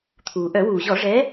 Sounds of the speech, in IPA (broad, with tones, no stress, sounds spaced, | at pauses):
t̪ʰ uː˩ ʔ œ˧˩˧ w uː˩ ʑ ɔ˧˩˧ ʐ ɛ˨˥